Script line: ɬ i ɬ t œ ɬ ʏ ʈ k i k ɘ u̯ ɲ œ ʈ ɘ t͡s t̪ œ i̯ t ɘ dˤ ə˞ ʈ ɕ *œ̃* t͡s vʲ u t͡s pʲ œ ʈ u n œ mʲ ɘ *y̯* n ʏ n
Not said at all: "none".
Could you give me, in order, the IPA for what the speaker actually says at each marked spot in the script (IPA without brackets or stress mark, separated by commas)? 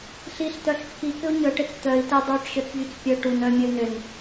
œ, y̯